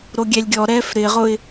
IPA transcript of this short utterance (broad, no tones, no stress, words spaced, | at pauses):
ɾoɡʲɛlʲɡʲɔɾɛːf ɾɪʁʊɪ̯